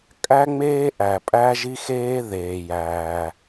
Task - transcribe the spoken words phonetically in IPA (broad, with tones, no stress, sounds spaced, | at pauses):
kʼ æ˥ ŋ͡m eː˥ ʔ æ˩ pʼ æ˥ ʒ i˥ x eː˥ ð eː˩ j æː˩